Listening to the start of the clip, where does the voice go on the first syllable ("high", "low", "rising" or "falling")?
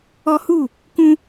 high